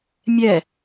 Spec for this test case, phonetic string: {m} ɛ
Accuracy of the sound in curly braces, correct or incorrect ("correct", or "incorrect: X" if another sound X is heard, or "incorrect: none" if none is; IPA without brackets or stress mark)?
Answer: incorrect: mʲ